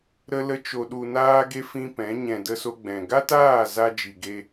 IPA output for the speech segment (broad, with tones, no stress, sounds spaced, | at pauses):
ɾ ə˧ l ə˧ t͡ʃ o˧ ɗ u˧ n aː˦ ɡ e˦ f ĩ˦ p ɛ̃˨˦ ɲ ɛ̃˨ d ə˧ s o˧ ɡ͡b ɛ̃˨ ɡ a˦ t aː˦˨ z a˧ d͡ʒ i˨ ɡ e˧